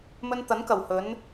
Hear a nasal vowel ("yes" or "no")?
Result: no